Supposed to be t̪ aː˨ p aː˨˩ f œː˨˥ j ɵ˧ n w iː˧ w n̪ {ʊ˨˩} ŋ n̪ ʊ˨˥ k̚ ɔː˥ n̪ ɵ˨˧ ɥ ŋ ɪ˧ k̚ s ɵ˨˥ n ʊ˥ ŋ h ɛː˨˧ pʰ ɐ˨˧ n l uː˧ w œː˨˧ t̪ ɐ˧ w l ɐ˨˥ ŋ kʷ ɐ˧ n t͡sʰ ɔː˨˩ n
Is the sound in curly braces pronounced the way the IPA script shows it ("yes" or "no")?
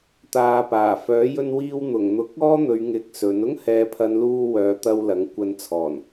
yes